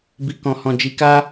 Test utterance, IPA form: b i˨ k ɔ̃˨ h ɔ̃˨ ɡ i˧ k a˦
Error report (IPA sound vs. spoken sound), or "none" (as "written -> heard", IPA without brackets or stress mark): ɡ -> d͡ʒ